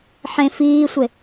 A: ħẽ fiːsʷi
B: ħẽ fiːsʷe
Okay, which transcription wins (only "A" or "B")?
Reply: B